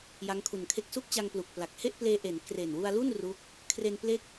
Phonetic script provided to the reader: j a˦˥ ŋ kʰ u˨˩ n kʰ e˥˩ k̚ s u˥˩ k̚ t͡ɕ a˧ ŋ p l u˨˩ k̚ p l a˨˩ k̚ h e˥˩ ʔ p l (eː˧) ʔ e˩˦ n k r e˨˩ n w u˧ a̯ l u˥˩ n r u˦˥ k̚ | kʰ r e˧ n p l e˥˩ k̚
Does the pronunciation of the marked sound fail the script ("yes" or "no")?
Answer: no